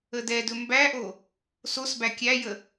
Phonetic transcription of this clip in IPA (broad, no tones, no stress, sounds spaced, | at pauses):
ə d ɛ d ɵ m b æ ʔ o | s o s b æ kʲ æ j ə